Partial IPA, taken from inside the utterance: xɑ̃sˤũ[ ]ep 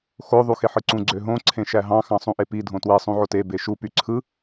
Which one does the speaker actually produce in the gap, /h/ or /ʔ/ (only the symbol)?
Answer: ʔ